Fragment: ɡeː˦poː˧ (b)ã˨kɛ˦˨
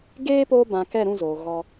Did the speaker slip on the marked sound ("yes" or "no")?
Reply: no